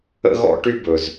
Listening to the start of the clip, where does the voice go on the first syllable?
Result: high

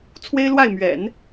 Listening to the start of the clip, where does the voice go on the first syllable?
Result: high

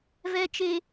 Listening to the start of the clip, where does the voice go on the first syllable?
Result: low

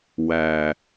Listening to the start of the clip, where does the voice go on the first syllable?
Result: low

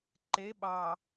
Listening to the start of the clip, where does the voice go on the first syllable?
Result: rising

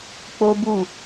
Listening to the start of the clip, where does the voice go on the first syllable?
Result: high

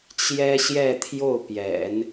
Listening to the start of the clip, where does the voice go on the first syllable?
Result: high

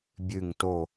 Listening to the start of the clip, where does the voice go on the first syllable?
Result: low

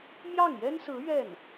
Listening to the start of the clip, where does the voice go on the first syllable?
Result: falling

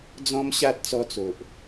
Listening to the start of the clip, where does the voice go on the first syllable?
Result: high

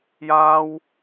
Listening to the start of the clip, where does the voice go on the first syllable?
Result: high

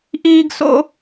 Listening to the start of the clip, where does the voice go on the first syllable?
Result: high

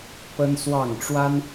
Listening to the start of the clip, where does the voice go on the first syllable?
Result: high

